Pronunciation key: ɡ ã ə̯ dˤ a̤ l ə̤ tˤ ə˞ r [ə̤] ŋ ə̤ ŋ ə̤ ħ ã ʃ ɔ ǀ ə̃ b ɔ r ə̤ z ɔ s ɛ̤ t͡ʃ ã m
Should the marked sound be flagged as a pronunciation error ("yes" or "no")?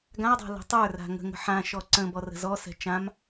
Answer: yes